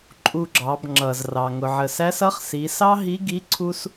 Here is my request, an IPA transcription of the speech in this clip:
ǃʼ u˧ ɡ͡ǁ ɑ˩˧ b ŋ͡ǁ ʌ˩ z r ɑ˩ ŋ ʊ˩ ʕ ə˩ s æ˧˥ s ʌ˧˥ χ s i˩˧ s ɑ˥ ɦ i˧˥ ɡ i˧˥ ǀʰ u˧ s

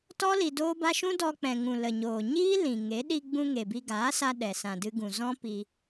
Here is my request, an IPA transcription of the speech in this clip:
t ɔ˦ l i˧ d oː˦ b a˦ ʃ ũ˦ d ɔ˧ k͡p ɛ̃˨ ŋ ũ˨ l ə˨ ɲ oː˨ ɲ iː˦ l ĩ˨ ŋ e˨˦ ɗ i˧ ɡ͡b ũ˧ ŋ e˨ b i˧ ɡ aː˨˦ s a˧ ɗ ɛ˨ s ã˨ d ɨ˧ ɡ ũ˨ z ɔ̃˦ p i˧

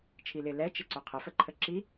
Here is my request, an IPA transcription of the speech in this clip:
t͡ʃʰ i l ɪ l ɛ t͡ʃ ɪ ǀ ʊ qʰ ə f ə ǃʰ ə ǁ i

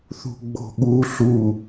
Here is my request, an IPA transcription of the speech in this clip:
θ ṳ ɡ͡b o̤ ɠ u ɬ u

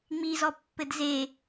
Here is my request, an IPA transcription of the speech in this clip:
ŋ͡m i z ɔ pː ɘ d z e

